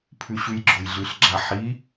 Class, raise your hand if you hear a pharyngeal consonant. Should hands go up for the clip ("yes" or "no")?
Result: yes